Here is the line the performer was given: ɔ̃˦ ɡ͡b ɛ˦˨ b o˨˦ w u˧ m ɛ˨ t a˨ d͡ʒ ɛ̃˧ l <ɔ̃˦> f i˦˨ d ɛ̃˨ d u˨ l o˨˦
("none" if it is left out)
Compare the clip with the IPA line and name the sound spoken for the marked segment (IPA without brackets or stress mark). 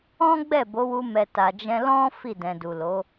ɔ̃˦